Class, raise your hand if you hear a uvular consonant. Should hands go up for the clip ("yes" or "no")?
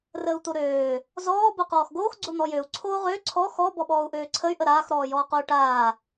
yes